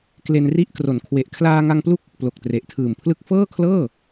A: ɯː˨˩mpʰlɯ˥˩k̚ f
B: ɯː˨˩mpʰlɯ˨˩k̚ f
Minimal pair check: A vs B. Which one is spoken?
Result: A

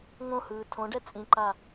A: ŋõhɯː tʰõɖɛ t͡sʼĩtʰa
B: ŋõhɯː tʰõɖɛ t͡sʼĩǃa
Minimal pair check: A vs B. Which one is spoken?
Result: B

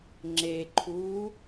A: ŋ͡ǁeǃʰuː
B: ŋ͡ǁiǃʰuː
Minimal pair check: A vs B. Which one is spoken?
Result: A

